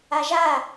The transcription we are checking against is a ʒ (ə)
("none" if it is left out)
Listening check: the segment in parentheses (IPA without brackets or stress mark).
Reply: a